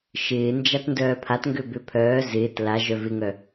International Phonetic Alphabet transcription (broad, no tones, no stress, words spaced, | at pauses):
ʃɪːnd͡ʒat ndœːpʰatŋɡø bøpʰœː zɪːt la ʒœvɪŋœ